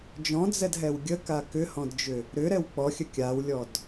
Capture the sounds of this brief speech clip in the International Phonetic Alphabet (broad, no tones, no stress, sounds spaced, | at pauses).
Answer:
d͡ʒ ɔ̃ d͡z ɛ d ɦ ɛ w ɡʲ ə k a k ʏ h ɔ̃ d d͡ʒ ʏ | ɾ ʏ ɾ ɛ w k͡p ɔ xʲ ə kʲ a w lʲ ɔ d